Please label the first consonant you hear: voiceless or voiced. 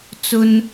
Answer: voiceless